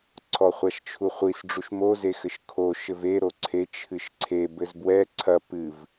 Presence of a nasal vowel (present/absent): absent